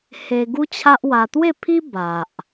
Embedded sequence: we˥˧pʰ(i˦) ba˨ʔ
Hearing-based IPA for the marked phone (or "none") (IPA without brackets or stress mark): i˦